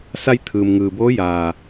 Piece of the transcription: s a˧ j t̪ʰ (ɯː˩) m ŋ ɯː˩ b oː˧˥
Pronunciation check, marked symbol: correct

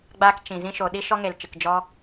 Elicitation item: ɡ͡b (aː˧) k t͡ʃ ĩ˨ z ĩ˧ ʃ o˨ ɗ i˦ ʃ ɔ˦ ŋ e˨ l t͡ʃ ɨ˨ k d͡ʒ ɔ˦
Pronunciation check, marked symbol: correct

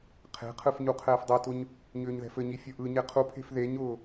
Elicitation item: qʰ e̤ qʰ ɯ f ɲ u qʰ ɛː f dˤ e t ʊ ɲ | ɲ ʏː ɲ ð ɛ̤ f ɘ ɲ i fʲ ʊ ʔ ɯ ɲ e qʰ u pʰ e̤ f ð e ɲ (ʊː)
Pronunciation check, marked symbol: correct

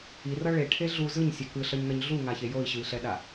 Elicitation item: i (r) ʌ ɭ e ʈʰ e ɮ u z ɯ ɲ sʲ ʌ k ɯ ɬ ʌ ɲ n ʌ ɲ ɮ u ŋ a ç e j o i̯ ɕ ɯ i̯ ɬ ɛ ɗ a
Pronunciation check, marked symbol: correct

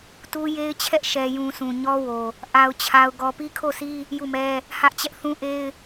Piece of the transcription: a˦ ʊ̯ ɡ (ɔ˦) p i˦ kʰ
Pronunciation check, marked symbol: correct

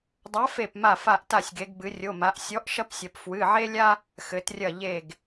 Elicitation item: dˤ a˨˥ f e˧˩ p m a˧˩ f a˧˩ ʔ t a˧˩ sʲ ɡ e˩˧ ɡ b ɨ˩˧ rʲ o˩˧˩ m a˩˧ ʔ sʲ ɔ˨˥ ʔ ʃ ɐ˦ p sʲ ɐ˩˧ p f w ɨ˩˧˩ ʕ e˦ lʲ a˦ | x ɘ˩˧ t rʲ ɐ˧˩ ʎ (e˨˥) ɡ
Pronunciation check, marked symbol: incorrect: e˧˩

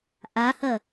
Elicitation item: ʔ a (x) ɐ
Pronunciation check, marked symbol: incorrect: h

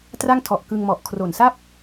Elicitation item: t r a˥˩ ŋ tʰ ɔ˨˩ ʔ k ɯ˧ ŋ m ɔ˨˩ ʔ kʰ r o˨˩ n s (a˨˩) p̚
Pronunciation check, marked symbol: incorrect: a˥˩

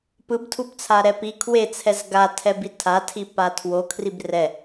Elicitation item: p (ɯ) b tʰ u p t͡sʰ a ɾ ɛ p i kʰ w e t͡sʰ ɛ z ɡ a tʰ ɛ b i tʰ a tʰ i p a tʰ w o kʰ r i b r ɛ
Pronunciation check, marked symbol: correct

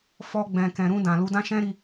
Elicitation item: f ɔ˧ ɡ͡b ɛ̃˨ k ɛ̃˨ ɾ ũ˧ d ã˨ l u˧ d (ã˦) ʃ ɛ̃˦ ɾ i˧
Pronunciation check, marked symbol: correct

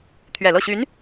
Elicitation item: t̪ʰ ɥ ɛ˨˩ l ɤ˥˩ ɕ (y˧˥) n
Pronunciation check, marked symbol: correct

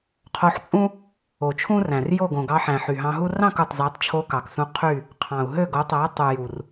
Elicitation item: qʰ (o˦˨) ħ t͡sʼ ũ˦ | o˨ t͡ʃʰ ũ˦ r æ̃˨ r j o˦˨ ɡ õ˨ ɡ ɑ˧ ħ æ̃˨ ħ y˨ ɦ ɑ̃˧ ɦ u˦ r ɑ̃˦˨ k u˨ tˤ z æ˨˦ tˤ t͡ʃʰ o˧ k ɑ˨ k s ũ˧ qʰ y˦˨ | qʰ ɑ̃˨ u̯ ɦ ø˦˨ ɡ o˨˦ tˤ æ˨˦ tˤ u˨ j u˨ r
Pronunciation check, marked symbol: incorrect: o˧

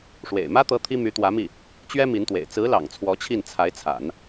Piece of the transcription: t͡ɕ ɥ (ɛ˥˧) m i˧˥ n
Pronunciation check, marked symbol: incorrect: ɛ˥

